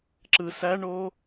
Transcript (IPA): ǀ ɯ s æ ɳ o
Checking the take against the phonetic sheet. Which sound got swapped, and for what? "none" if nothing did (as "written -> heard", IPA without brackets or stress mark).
ǀ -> ǁ